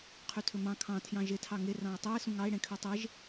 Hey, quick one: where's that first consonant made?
uvula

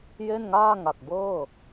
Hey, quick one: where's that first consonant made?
palate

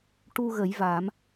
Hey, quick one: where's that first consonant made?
retroflex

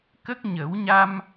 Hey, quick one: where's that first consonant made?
velum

